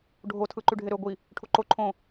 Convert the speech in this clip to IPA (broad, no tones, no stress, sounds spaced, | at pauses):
ɖʱ o tʰ ɯ ǃ y ɖʱ e ɾ ø ɡʷ i | ʈʰ u ǃ o ǃʰ õ